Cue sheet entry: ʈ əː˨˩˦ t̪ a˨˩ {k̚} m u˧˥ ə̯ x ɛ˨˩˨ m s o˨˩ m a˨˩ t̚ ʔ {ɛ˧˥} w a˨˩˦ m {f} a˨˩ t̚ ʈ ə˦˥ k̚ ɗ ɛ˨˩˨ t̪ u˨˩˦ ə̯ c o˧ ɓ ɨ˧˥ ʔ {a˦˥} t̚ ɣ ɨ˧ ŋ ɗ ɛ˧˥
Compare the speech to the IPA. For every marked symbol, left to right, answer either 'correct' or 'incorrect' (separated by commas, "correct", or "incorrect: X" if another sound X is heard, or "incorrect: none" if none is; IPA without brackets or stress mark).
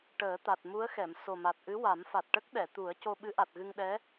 incorrect: t̚, incorrect: ɨ˧˥, correct, incorrect: a˨˩